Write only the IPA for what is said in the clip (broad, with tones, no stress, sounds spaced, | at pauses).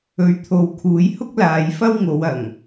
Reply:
ɵ˨˧ ɥ t̪ʰ o˨ w kʰ uː˨˧ j h ʊ˥ k̚ l aː˨˧ j f ɐ˥ w ŋ o˨˧ w ɐ˨˩ ŋ